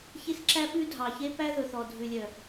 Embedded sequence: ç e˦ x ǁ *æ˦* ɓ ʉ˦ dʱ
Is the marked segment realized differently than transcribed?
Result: no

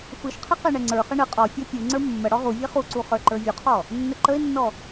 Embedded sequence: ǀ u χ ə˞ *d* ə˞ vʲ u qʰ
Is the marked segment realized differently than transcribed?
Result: yes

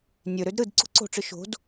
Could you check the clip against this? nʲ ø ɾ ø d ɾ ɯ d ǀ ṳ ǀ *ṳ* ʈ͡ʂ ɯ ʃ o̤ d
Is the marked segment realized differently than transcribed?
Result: yes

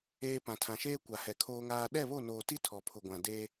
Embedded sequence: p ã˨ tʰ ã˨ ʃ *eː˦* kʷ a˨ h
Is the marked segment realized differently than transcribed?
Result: no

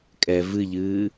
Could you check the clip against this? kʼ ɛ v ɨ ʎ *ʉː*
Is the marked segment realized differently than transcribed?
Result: yes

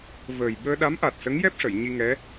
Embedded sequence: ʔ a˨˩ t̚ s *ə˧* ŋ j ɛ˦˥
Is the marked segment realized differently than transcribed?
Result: yes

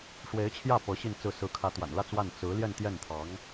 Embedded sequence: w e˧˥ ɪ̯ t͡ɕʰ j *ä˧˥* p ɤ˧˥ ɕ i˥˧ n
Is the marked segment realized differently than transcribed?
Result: yes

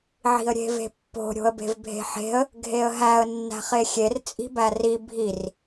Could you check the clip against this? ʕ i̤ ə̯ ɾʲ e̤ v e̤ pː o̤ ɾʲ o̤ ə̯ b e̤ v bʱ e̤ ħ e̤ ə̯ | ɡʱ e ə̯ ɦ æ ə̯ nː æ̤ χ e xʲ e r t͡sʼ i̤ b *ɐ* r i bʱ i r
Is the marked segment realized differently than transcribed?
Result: yes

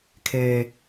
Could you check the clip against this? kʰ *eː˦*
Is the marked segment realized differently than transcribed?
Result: no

